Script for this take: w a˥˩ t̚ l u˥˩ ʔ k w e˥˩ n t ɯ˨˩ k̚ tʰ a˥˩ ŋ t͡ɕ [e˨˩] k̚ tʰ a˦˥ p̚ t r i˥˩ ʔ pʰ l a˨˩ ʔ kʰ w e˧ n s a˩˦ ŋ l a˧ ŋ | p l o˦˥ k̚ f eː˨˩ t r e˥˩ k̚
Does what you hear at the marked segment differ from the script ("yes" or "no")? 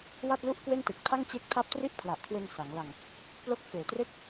yes